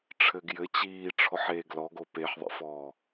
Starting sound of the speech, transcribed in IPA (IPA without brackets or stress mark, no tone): ʈ͡ʂʰ